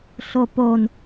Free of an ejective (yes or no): yes